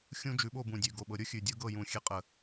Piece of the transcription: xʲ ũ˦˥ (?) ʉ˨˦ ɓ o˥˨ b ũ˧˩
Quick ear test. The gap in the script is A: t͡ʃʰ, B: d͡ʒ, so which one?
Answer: B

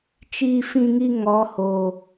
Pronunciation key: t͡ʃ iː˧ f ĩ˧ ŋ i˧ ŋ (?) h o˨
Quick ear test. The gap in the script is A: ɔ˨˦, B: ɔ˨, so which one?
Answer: A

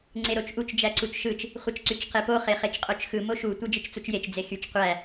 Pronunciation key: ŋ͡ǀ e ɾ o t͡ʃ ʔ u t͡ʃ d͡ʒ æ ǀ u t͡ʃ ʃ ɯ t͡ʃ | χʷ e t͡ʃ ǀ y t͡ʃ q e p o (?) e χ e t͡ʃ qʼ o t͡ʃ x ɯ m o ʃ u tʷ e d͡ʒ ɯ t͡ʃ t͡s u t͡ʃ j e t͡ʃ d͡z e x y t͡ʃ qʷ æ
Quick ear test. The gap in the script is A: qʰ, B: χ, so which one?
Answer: B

